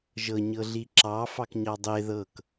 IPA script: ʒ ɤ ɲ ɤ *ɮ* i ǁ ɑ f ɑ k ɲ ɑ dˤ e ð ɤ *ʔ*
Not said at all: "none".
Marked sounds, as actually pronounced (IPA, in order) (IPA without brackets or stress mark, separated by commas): ɮ, k